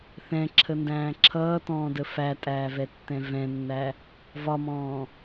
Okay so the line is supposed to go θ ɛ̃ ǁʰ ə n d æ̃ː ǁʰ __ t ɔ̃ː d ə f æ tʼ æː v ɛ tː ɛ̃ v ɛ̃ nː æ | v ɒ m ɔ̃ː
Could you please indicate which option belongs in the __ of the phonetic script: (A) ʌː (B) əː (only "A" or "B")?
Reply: A